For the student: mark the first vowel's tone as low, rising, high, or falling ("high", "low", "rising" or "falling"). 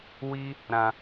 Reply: high